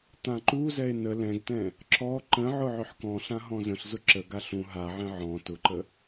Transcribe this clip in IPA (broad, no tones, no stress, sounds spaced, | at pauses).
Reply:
t ã ǃ u z ɛ e̯ n ə l ɛ̃ ɡ t ɛ̃ | ǁ ɔ ǃ ə̃ ʕ ʊ ʕ ʏ ħ k ɔ̃ ɬ ã ɦ ɔ̃ z ə̃ ɬ z ʊ ǁ ə ɡ a ɬ ũ ɦ a ʕ ɛ̃ ʕ ɔ̃ t ʊ ǃ ə